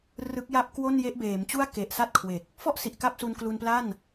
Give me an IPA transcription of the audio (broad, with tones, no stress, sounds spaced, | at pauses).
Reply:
r ɯ˦˥ k̚ j a˥˩ p̚ k w o˥˩ n j e˦˥ ʔ b eː˩˦ m t͡ɕ u˥˩ a̯ k e˨˩ ʔ s a˥˩ t̚ kʰ w e˨˩ k̚ | f ɔ˥˩ ʔ s i˨˩ ʔ k a˥˩ p̚ s u˧ n k l u˧ n p l a˥˩ n